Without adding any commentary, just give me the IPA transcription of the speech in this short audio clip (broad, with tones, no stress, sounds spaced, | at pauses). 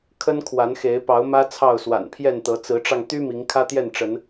kʰ ə˦ n kʰ w a˨˦ n x e˨˦ ɪ̯ p ɑ˨˦ ʊ̯ m ä˦ t͡sʰ ɑ˥˨ ʊ̯ s w a̰˨˩ n pʰ j ɛ˥˨ n t̪ ɤ˨˦ t͡s ɹ̩˨˦ ʈ͡ʂ ɑ˧ ŋ t̪ y˦ m i˨˦ ŋ kʰ ä˦ t̪ j ɛ˥˨ n ʈ͡ʂ ə˨˦ n